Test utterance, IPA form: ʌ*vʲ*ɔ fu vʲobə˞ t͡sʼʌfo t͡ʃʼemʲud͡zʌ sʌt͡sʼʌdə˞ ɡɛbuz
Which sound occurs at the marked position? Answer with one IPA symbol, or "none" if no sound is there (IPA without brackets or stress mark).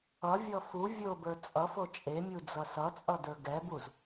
vʲ